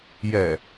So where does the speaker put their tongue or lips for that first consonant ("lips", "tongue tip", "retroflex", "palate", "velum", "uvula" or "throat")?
palate